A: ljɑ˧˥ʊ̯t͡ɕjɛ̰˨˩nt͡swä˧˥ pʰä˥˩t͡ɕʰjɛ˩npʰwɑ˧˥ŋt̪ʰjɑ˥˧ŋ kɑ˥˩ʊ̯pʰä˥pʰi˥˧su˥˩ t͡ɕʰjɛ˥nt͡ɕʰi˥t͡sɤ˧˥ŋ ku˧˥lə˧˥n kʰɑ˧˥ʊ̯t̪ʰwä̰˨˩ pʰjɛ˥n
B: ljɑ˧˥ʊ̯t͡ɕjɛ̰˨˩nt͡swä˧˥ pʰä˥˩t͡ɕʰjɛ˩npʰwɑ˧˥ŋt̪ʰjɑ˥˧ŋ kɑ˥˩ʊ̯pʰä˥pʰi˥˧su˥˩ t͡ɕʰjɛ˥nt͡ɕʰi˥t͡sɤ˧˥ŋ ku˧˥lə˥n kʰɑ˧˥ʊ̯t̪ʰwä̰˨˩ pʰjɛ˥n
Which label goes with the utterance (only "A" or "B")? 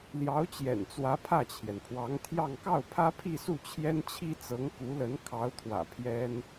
A